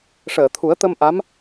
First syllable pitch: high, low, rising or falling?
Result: low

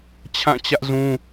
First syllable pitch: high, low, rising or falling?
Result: falling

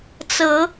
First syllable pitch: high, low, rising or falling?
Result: rising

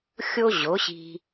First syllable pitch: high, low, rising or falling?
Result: high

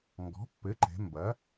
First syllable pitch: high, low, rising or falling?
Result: rising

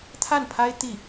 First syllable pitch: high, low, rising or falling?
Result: falling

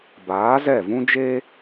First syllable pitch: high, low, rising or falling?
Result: rising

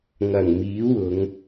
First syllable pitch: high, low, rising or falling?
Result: low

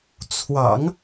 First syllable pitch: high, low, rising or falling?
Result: low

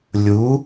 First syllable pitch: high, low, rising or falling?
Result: rising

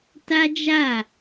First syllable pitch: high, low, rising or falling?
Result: high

